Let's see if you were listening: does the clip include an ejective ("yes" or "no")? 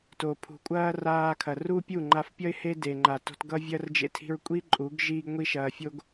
yes